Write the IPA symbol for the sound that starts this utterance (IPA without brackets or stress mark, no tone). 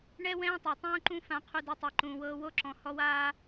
ɳ